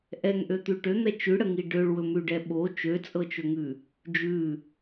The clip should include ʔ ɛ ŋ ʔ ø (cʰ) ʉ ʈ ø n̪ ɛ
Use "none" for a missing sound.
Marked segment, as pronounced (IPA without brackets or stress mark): t̪